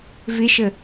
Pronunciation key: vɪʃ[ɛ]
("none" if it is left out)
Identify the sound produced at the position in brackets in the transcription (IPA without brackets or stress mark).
ə